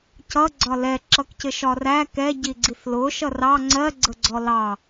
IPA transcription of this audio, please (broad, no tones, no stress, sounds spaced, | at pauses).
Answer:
c ʌ ɡ͡ǀ ɒ l ɛ ǁ ʌ k c ɪ ʃ ɒ r æ k ɛ ɟ i ɡ͡ǀ i θ l ʊ ʃ ʌ r ɑ ŋ͡ǀ ɜ ɡ͡ǀ ə ɡ͡ǀ ɔ l ɑ